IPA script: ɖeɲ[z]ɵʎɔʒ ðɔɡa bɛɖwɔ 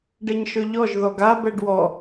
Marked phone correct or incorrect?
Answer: incorrect